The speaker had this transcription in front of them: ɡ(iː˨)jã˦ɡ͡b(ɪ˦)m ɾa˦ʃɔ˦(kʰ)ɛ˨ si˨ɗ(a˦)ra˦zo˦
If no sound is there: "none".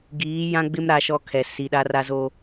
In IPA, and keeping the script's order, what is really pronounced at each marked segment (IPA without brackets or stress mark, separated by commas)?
iː˨˦, ɪ˦, kʰ, a˦